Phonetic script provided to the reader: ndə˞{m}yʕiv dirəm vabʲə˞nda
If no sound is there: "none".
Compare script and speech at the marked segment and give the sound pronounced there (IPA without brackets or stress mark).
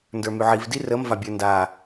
m